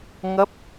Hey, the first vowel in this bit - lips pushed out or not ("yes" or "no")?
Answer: no